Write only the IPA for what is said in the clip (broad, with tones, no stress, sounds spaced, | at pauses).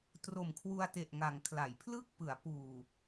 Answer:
t r o˨˩ m kʰ w u˧ a̯ t e˨˩ ʔ ŋ a˩˦ ŋ kʰ l a˩˦ j pʰ l ɯ˥˩ k̚ p ɯ˩˦ a̯ p uː˨˩